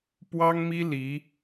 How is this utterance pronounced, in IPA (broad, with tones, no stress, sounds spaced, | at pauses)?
p w ɑ˥ ŋ m i˥ l i˧˥